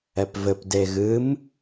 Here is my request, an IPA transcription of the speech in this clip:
ɛ p v ɘ p d e ɣ ɨ m

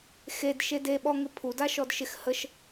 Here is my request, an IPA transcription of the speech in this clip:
x e d ʃ e d e ɓ ɔ ŋ ɪ pʰ u d a ʃ ɔ d ʃ ɪ x h ə ʃ

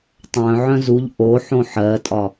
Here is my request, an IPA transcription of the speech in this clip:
tˤ œ̃ ʕ œ̃ z u ʎ ʔ o ħ õ ħ ɜ tʼ ɒ

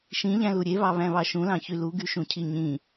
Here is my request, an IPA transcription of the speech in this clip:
ʃ ĩ ʎ æ̃ l u ɾʲ e β ɑ β æ̃ β ɑ ʃ ũ l ɑ̃ ç y l u ɡ y ʃ ũ cʰ i ɲ ĩ

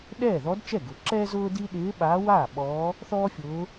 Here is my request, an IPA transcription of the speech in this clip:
ɗ ɛː˥˩ ð ɔ˧˥ d t͡ʃ ɛ˥˩ ɡ ʊ˩˥ ǁ ɛː˥ z ʊː˥ d i˥ ɗ ɪː˧˥ ɓ aː˧˥ w aː˥˩ ɓ ɔː˧˥ | θ ɔː˥ fʲ ʊː˧˥

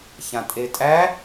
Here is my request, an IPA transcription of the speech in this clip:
ç ã tʼ e tʼ æ

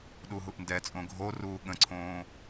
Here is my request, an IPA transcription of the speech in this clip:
ɗ u ɦ u ʔ n d ɛ t͡sʼ õ ɡʱ o r uː ɠ ə̃ ǀʰ õː

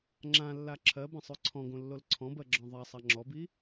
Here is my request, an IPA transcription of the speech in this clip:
ŋ͡ǁ ã lː a ǁʰ ɜ b ã sˤ ʉ ǀʰ ɔ̃ ɡ õ lː o l ǀʰ ɔ̃ b ɜ ɡ͡ǁ ɔ̃ ðˤ a sˤ a ŋ͡ǁ ɔ b i

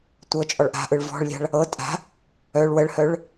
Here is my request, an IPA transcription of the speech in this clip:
tʷ ɤ t͡ʃʼ ɔ ɭ ʔ a̤ ʔ ɯ ɭ v ɔ̤ ɭ lʲ a̤ ɭ | ɤ tʼ a̤ | œ ɭ w ə ɭ h œ ɭ

